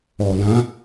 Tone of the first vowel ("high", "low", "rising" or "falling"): low